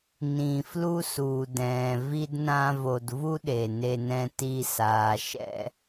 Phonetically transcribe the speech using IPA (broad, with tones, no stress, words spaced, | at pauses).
nĩ˨ flu˦su˨dɛ̃ː˨ vi˨dnã˨ vo˨d vu˦ɗe˨ ne˨nɛ̃˨ti˨ saː˨ʃɛ̰˦